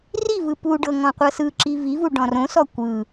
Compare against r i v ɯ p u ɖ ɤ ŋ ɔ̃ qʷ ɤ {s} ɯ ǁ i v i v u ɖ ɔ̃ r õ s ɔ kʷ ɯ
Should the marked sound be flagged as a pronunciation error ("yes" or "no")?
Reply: no